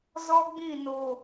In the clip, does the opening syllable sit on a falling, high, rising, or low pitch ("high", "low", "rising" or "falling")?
high